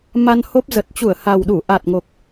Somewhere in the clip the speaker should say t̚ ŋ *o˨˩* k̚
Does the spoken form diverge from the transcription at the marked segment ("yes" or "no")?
no